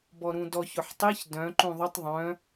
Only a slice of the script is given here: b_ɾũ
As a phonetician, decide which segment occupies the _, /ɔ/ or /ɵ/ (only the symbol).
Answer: ɔ